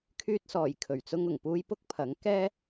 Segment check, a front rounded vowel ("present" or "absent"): present